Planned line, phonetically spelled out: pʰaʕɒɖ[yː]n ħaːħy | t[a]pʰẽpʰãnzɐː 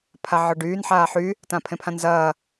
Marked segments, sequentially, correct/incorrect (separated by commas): correct, incorrect